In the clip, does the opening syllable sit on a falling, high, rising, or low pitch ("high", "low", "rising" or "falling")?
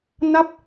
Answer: falling